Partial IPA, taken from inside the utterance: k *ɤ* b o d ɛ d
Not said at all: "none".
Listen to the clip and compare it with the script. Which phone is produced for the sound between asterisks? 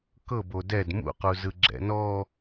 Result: ɤ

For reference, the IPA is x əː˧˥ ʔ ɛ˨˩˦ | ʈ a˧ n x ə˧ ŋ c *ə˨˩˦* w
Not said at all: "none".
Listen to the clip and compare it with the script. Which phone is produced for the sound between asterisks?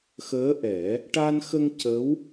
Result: ə˧˥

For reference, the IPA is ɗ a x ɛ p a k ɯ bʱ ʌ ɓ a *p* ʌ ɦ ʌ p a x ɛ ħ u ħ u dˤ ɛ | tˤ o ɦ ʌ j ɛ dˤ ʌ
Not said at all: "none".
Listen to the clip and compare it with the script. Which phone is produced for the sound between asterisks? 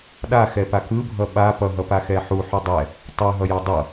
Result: p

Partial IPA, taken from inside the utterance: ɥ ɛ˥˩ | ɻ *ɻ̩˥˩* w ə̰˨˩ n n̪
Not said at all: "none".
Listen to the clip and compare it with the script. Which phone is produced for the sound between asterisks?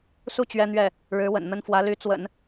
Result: ɻ̩˧˥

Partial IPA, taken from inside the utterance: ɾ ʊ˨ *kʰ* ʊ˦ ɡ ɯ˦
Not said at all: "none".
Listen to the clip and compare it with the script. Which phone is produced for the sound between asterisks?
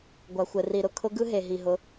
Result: kʰ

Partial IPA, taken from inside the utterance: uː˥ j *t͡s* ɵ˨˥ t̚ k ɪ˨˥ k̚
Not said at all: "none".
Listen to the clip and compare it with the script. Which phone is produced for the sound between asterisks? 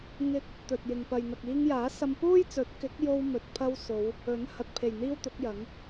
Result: t͡s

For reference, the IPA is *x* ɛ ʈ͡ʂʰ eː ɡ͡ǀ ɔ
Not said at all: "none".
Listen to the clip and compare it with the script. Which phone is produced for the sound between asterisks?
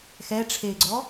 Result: x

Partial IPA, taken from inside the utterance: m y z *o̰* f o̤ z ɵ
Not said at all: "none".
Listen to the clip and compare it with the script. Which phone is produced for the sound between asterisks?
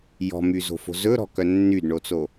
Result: o̤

